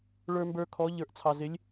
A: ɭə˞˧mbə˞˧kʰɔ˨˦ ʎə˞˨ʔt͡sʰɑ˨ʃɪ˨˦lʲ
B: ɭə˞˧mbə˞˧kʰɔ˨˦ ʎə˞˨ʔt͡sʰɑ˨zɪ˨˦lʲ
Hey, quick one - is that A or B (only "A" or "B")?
B